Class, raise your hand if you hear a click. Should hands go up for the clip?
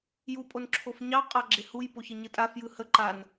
yes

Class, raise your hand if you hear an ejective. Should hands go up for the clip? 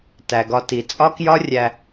yes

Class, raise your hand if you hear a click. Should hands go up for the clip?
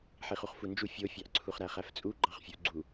yes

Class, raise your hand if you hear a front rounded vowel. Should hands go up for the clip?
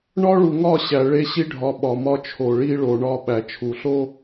no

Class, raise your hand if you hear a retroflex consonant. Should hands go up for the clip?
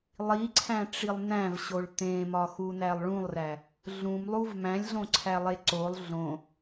yes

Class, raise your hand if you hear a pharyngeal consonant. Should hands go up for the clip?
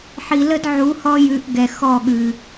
yes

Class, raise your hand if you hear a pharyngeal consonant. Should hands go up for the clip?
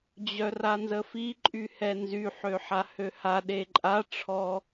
yes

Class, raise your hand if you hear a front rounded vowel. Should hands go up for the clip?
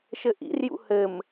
no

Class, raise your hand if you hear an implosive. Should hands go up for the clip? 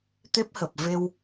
no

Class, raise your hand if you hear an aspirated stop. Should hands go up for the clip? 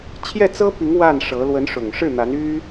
yes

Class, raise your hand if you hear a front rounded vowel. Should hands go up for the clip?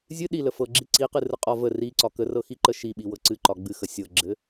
no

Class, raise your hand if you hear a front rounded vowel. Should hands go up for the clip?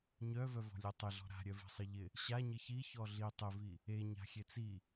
yes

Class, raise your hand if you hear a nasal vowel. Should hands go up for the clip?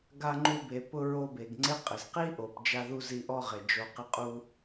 no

